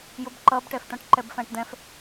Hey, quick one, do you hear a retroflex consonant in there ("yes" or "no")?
yes